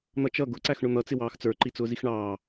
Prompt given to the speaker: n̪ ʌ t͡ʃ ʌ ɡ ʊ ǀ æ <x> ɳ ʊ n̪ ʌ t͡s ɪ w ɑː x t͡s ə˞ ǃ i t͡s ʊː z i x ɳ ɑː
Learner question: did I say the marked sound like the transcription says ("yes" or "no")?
yes